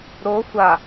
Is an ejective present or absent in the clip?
absent